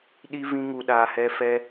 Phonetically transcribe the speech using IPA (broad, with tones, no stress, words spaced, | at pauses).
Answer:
ɗi˧vĩ˧ŋu˨ɗaː˨ hɛ˧ fɛ˧